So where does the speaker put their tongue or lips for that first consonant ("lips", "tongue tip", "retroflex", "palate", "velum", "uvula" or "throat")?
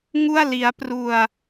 velum